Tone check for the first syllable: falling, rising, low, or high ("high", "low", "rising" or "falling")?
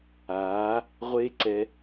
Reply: rising